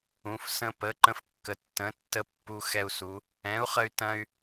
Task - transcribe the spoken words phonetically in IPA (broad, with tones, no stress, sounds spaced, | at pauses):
ũ˩˧ f s ə̃˧ p ə˩˥ ǃ ə̃˧ f kː ə˩˧ tː ə̃˩˥ tː ə˧ pː u˧ x ɛ˧ u̯ s u˩˧ | ɛ̃˩˥ u̯ χ ə˧ y̯ t ɐ̃˧ y̯